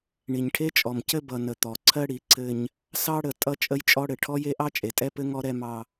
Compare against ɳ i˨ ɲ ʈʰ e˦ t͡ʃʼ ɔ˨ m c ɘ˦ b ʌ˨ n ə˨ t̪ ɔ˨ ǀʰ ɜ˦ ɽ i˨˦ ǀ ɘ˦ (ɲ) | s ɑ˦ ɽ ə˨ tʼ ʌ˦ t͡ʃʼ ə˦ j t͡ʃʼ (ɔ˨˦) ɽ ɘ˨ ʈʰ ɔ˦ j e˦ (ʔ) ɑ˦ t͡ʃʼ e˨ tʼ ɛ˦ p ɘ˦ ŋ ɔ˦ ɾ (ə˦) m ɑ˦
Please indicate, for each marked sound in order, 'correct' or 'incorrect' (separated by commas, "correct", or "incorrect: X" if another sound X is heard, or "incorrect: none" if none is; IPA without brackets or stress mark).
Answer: correct, incorrect: ɔ˦, correct, incorrect: ɛ˦